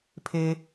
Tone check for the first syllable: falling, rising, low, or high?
high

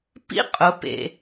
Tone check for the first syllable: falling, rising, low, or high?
high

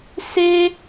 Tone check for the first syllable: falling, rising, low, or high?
high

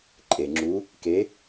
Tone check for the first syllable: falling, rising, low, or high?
low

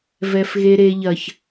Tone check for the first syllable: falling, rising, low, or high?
low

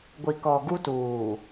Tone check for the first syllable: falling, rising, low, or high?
low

